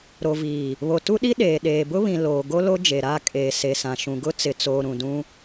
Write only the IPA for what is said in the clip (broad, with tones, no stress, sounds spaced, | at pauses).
ɾ o˨ v iː˨ | β o˨ t u˦ ɗ i˦ ɗ eː˨ ɗ eː˨ b ʊ˦ β ĩ˨ l oː˨ ɡ o˦ l o˦ d͡ʒ e˨ ɾ aː˦˨ kʼ eː˨ s e˨ s ã˨ ʃ ũ˨ ɡ ʊ˦ t͡s ɪ˨ t͡s oː˨ ɾ ũ˨ d ũ˦